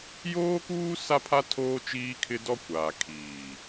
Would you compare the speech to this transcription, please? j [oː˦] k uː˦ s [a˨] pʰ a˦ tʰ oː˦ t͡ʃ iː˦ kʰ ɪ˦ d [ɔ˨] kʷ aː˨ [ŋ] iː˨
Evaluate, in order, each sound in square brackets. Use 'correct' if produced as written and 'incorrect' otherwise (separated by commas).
correct, incorrect, incorrect, incorrect